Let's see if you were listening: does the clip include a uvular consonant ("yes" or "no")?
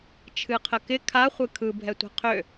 yes